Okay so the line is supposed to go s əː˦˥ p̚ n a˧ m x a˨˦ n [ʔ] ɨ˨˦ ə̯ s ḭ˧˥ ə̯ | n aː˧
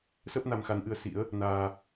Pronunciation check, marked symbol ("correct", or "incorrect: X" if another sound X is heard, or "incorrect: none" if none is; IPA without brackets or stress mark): correct